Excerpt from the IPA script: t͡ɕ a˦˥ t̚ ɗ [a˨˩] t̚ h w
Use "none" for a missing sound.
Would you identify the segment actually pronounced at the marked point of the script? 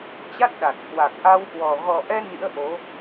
a˨˩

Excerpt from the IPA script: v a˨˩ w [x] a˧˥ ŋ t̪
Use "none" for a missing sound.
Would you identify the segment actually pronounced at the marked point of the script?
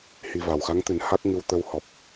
x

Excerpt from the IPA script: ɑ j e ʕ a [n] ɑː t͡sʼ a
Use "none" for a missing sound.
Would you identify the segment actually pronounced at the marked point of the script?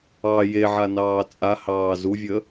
n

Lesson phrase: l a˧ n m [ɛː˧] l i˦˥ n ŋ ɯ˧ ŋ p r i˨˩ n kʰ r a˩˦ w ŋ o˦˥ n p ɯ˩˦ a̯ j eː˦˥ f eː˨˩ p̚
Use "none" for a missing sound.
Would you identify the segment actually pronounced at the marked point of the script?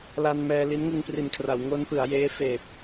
ɛː˧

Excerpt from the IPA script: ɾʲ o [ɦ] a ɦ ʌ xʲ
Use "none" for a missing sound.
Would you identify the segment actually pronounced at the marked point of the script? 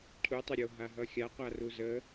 ɦ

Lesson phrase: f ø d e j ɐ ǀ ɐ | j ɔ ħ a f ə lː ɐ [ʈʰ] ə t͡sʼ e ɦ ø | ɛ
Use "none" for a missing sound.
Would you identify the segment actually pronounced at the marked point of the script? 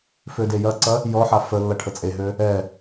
ʈʰ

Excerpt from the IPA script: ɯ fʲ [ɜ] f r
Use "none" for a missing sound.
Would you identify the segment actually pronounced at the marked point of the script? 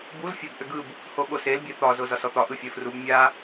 ɜ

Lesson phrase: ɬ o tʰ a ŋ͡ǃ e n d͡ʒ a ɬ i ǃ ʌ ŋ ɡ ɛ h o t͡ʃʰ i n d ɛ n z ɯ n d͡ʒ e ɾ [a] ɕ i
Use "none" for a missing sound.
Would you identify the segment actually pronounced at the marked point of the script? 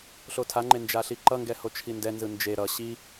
ʌ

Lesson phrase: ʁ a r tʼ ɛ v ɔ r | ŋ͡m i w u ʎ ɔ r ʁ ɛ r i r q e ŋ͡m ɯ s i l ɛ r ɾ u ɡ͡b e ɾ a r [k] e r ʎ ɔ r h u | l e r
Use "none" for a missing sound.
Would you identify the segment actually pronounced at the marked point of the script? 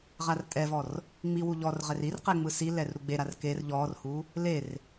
k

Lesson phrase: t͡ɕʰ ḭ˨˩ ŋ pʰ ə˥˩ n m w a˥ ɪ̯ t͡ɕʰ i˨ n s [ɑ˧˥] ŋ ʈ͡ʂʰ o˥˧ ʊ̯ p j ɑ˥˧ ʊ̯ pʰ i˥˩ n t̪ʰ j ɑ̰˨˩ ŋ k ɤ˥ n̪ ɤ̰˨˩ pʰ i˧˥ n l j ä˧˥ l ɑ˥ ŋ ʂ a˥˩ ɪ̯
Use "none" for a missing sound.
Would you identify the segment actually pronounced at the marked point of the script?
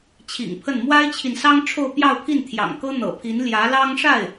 ɑ˥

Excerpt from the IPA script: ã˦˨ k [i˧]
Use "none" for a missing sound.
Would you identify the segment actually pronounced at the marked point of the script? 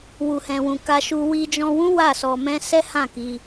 i˧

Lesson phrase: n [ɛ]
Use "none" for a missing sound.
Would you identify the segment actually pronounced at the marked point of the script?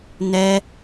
ɛ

